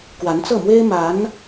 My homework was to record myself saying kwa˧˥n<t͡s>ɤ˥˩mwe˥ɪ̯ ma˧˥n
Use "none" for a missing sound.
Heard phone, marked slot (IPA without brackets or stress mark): t͡s